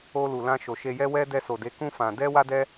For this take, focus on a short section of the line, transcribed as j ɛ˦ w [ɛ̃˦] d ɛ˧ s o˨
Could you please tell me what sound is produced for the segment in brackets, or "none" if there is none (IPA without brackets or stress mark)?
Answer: ɛ˦